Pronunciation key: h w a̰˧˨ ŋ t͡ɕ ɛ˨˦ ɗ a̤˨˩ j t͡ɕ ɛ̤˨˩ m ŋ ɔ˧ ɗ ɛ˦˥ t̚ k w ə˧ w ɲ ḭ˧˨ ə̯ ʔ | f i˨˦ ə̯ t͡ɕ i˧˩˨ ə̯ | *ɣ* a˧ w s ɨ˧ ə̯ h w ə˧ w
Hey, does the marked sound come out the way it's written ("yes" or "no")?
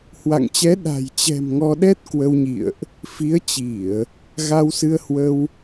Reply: yes